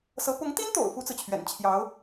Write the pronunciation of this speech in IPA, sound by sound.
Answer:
s ɤ˧˥ p ʊ˧˥ ŋ t̪ i˥ n t̪ o̰˨˩ ʊ̯ f u˥ t͡s ɹ̩˨ t͡ɕʰ ɥ ɛ̰˨˩ n t͡ɕʰ j ɑ˧˥ ʊ̯

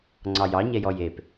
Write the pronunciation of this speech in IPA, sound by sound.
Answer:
ŋ͡ǀ ɑ j ɑ ɲ ɛ j ɔ j e p

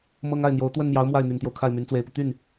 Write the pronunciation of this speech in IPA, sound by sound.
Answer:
m ɤ˥ ŋ a˥˩ ɪ̯ n̪ j o˧˥ ʊ̯ t̪ w ə˥˩ n m j ɑ˧˥ ʊ̯ m w a˥˩ ɪ̯ n̪ y˨˩ n t̪ j o˦ ʊ̯ kʰ a˥˩ ɪ̯ m y˧˥ n t͡s w e˧˥ ɪ̯ p u˧ t̪ y˥˩ n

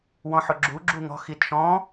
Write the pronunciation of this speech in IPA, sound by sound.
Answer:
w ɔ̃ ħ ʊ ɡ͡ǁ u ɡ͡ǁ u ŋ ɔ̤ x i t ʃ ɔ̃

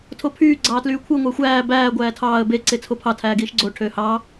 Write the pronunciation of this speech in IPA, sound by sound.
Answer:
tʰ o pʰ yː ɡ͡ǀ ɑː t l yː kʷʰ ɯ ŋʷ æ xʷ æː b æː ɡʷ æː tʰ ɑː ə̯ b e ǀ e t͡sʰ o pʰ ɑ tʰ æː ɡ iː ʃ ɡ͡ǀ o ʈʰ øː h ɑː

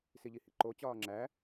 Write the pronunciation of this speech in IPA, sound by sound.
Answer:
s i ʎ i h ḭ ǃ o t͡ɕ ɒː ŋ͡ǁ æ

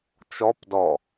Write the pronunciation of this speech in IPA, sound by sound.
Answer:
t͡ʃ ɔ p d ɔ

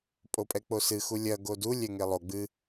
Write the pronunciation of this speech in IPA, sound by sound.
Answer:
pʼ o pʼ ɛ k͡p o s ɨ x u lʲ ɐ ɡ o d u lʲ ɛ ŋ e lˠ o ɡ͡b ɨ

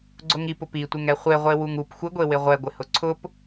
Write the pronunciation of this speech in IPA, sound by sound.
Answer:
ɡ͡ǀ ʊ ŋ i p ʊ p i tʷ ɪ ŋ ɛ χʷ e ʁʷ e w u ŋ u p xʷ ɪ ɡʷ e w ɪ ʁʷ ɛ ɡʷ ɪ h ʊ ǀʰ ʊ p

